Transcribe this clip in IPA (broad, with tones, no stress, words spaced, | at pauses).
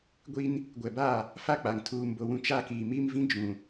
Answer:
ɡʷi˦n | ɡʷɛ˨ba˦˨ | fa˦k͡pa˨ŋ tʰuː˨mbo˨ wũ˦t͡ʃa˦kiː˨ mi˦mvĩ˦ d͡ʒũ˨